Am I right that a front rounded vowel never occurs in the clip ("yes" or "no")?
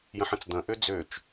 no